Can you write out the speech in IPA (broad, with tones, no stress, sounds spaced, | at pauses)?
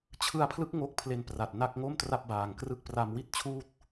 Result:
t͡ɕʰ ɯ˧ a̯ pʰ l ɯ˦˥ k̚ ŋ o˥˩ k̚ pʰ l e˧ n p r a˨˩ t̚ n a˥˩ k̚ ŋ o˥˩ m t r a˥˩ p̚ b aː˨˩ ŋ k r ɯ˥˩ k̚ p r a˧ m w i˥˩ t̚ t͡ɕʰ uː˥˩ t̚